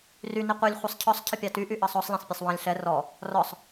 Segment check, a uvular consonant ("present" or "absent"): present